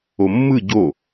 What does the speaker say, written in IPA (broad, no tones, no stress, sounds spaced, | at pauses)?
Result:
o mː ɯ ɟ o